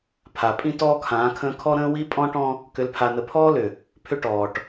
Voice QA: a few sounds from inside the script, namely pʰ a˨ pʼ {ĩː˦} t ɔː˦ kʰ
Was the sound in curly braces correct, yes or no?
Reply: no